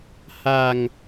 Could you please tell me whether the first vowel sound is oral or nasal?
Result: oral